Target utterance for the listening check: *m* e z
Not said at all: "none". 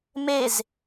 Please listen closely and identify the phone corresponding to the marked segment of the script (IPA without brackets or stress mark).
m